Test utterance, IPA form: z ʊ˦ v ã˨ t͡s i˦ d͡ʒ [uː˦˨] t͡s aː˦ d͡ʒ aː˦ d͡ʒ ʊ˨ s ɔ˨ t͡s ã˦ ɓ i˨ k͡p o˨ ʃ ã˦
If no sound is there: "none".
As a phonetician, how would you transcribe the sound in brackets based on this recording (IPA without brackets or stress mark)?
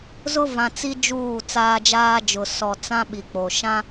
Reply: uː˦˨